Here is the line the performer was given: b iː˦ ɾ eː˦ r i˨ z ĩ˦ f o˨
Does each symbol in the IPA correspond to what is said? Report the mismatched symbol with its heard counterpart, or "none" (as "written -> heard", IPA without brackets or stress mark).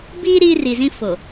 eː˦ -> iː˦